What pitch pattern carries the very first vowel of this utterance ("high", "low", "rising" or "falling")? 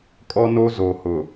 high